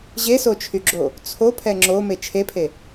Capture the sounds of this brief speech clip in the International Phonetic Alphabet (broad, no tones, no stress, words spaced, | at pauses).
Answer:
ʑesot͡ʃʰyɡ͡ǁo | t͡sʰopʰɛ ŋ͡ǁome t͡ʃʰepʰe